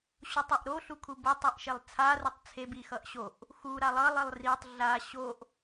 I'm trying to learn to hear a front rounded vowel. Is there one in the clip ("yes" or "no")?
no